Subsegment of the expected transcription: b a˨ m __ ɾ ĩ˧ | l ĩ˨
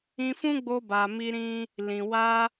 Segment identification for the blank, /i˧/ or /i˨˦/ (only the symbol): i˧